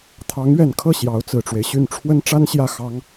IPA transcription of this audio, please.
t̪ʰ ɑ˧˥ ŋ ɥ ɛ˨˩ n kʰ ɤ˥˩ ɕ j ɑ˧˥ ʊ̯ t͡s ɹ̩˨˩ ʈ͡ʂ w e˦ ɪ̯ ɕ y˥˩ n ʈ͡ʂʰ w ə˥ n ʈ͡ʂ a˥ n ɕ j ä˥˩ x ɑ˥ ŋ

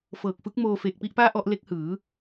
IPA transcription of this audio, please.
f ɤː˨˩ k̚ f ɯ˦˥ k̚ m oː˧ f eː˨˩ k̚ p i˥˩ ʔ p aː˥˩ ʔ ɔ˥˩ ʔ l e˦˥ k̚ h ɯː˩˦

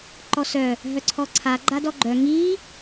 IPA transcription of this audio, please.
ǃ ɔ s œ | ɦ œ ǀʰ ɔ ǀʰ a ɡ͡ǃ a d ɔ ɡ͡ǃ œ ŋ i

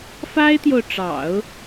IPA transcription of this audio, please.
f a˥ ɪ̯ t̪ j o˨ ʊ̯ ʈ͡ʂ ɑ̰˨˩˦ ʊ̯

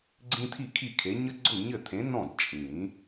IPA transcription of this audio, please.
ɡ͡ǀ ĩ˦ t̪ʰ i˥˩ kʰ i˥˩ kʰ e˨˥ ɲ ə˦ ɡ͡ǀ ʊ˥˩ ɲ ɘ˥˩ t̪ʰ ẽ˨˥ n ɔ̃˥˩ d t͡ʃʼ ĩ˨˩˦

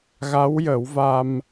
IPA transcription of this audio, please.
ɣ a˧˥ w j ə˨˩˦ w v a˧ m

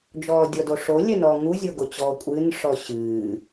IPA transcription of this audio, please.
d͡ʒ ɔː dʲ ɔ d o ʂ o lʲ ɛ n ɔː ŋ u zʲ o ɡ o t͡ɕ ɔː kʷʼ ɨː n ʂ ɔ ɕ ɨː

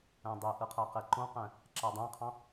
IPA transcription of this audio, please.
æ̃ dˤ e ʔ ɯ qʰ æ q e ǃ õ q æ̃ | ǁ æ dˤ æ̃ qʰ ɑ̃

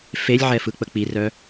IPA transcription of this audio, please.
f e lʲ ʕ ɛ f ɯ k͡p ə k͡p i r œ

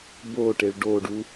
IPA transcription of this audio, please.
b o ʈ e ɭ ɖ o ɖ u

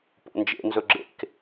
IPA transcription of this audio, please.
p o̰ n d͡ʒ ḛ n z ɵ ɡ͡ǁ ḛ k

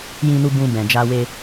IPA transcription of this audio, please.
j ĩ˧ n u˧ b ũ˧ b ɛ̃˨ d͡ʒ a˧ w e˧

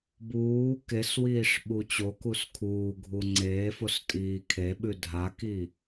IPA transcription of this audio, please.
b uː k e s w iː ʂ ɓ u t͡ɕ o k u s kʰ uː ɡʱ u ŋ͡ǀ eː f o s tʼ iː kʰ e ɓ ʉ dʱ a k i

